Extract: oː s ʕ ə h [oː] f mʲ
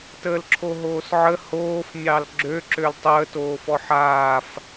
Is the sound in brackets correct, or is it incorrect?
correct